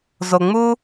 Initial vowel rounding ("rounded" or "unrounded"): rounded